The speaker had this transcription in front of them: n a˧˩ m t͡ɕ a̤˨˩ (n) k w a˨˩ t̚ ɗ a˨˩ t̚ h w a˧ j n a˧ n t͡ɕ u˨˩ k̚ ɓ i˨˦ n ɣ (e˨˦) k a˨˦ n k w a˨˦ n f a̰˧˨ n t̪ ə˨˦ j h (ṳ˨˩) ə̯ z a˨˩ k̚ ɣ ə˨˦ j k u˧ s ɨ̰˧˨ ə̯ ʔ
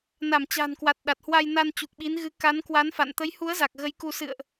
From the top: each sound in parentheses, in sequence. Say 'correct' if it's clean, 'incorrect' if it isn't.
correct, incorrect, incorrect

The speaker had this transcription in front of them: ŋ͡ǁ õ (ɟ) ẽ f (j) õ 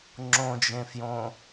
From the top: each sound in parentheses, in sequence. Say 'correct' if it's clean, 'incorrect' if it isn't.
incorrect, correct

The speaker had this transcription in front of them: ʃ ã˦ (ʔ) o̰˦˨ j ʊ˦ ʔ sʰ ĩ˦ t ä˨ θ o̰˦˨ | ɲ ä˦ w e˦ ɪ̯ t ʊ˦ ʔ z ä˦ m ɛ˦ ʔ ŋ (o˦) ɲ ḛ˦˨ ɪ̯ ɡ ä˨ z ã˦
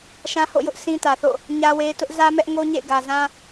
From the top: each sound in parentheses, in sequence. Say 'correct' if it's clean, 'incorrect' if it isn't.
incorrect, correct

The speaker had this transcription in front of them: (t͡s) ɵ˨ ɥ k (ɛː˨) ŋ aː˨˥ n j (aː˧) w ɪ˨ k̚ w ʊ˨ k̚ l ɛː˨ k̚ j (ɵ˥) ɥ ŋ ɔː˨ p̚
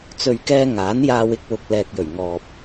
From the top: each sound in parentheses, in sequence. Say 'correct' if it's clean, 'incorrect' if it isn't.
correct, incorrect, correct, incorrect

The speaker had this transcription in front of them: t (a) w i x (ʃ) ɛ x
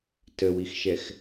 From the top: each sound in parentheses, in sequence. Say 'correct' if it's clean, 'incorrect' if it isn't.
incorrect, correct

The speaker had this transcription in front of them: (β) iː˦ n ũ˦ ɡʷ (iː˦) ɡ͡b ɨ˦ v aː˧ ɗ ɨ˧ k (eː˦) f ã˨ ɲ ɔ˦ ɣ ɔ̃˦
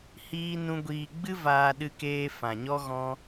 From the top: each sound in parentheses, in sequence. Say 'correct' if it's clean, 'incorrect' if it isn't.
incorrect, incorrect, incorrect

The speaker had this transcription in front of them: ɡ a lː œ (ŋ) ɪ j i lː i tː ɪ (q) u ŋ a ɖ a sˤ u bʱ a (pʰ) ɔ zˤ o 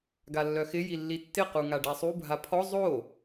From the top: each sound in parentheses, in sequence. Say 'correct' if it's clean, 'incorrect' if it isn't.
incorrect, correct, correct

